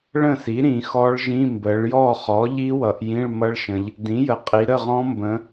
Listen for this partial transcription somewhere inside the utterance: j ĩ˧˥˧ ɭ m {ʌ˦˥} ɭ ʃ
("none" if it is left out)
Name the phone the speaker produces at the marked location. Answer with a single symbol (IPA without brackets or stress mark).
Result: ʌ˦˥